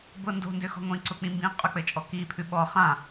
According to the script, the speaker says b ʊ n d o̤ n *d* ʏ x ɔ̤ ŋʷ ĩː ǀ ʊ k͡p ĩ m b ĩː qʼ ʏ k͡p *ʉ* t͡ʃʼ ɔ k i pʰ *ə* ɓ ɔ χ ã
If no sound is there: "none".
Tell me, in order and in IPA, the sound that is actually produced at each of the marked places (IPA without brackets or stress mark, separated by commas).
d, ɘ, ʉ